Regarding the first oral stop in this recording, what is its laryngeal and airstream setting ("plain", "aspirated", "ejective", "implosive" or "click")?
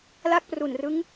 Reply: plain